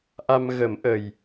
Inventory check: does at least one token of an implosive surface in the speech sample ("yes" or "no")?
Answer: no